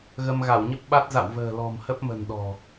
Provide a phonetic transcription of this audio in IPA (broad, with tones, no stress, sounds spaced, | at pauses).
ɣ ə˧ m ɣ a˧˩ w ɲ ə˦˥ p̚ ɓ a˦˥ t̚ z a̰˧˨ w v ə̤ː˨˩ l ɔ̤˨˩ m h ə˦˥ p̚ m ə̤˨˩ n ɗ ɔ̤˨˩